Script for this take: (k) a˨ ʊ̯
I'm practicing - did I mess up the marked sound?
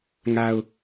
yes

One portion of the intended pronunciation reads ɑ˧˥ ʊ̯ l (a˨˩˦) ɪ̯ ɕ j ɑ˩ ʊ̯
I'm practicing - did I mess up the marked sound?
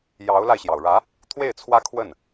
yes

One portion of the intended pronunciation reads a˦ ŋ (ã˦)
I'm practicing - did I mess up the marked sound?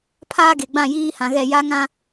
no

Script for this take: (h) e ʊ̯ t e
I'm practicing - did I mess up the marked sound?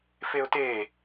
yes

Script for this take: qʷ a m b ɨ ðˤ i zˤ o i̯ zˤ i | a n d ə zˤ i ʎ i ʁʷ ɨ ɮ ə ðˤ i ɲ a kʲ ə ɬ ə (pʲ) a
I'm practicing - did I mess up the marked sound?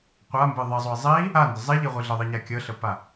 yes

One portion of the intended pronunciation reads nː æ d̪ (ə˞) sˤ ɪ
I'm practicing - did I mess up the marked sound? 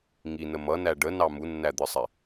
no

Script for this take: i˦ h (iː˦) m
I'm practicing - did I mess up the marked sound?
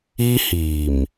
yes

